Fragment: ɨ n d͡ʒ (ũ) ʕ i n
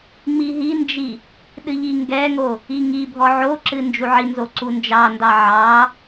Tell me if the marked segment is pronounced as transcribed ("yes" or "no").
no